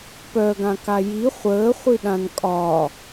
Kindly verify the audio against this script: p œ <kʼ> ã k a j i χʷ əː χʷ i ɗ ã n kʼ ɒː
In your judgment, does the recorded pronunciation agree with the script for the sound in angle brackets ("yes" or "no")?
no